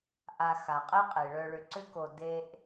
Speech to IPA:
ʔ a˨ x a˩ qʼ e˦ qʼ e˩ ɭ œ˨ ɭ ʏ˨ ǀ ʏ˦ k o˨ d e˦ ʔ

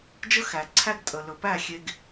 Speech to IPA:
d͡ʒ ə˦ x æ˨ ǀʰ æ˦ ɡ tʼ ə˨ l ɵ˨ p æ˦˨ xʲ e˨ ɡ

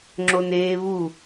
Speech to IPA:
ŋ͡ǁ o n eː β u

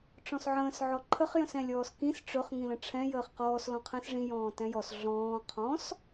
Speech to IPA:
ʈ͡ʂ ɔ̃ s ʕ ə̃ː s ʕ ɔ ǃʰ ə χ j ə̃ s ɛ̃ lʲ ɔː s k ĩ s ʈ͡ʂ ɵ χ ŋ ĩ l ə̃ ʈ͡ʂʰ ɛ̃ j əː χ q ɔː s l ɔ̃ qʰ ɛ̃ s ʐ ĩ j ɔ̃ː t ɛ̃ j ɔ s ɮ ɔ̃ː qʰ ɔ̃ s

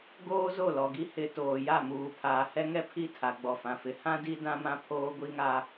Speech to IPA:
ɡ oː˦ z o˦˨ l ɔ˨ ɡ i˦ h ɪ˨ t oː˨ j a˦˨ m uː˨ pʰ aː˨ h ɛ˦ ŋ ɛ˦ pʰ i˦˨ tʰ a˨ ɡ͡b ɔ˨ f ã˨ f ɪ˨ h ã˦ d i˦ d ã˦ m ã˦ pʰ oː˦ ɡʷ i˦ ŋ a˦

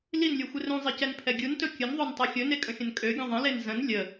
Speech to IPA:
l i n lʲ u xʷ ɪ r ũ zˤ e c ɛ n pʰ ɛ ɡʲ u n t ɵ kʲ ə n ðˤ o n tˤ i xʲ ɵ n e kʼ ə̃ xʲ ə̃ n kʼ ø ɡʲ ə̃ ðˤ ə̃ l e n z ə̃ n lʲ ə

